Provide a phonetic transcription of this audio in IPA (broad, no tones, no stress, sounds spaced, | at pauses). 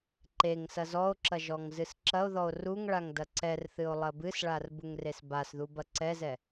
ǃ e ŋ s ɐ z ɔ o̯ ǁ ɐ ʒ ɔ ŋ z ɨ s ǁ ɐ o̯ ð ɔ o̯ r u ŋ ɭ a ŋ d ɐ ǀ ɛ r θ ɨ o̯ lˠ ɐ b ɨ s ɭ a r b u ŋ r e s b a s ð u b ɐ ǀ ɛ z ɛ